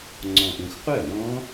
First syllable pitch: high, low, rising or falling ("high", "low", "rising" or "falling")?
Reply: low